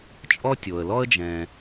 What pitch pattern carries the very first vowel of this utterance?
high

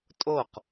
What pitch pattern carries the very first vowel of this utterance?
falling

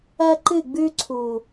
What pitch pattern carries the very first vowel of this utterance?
high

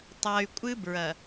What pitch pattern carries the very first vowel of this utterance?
low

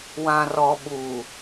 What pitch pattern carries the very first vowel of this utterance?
low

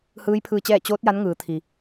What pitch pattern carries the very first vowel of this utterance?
rising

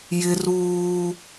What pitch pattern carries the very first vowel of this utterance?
high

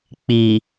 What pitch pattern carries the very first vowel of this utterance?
low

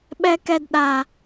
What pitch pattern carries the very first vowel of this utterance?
high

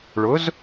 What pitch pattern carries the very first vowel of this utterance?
rising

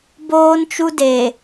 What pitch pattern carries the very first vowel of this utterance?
high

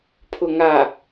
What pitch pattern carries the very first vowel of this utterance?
low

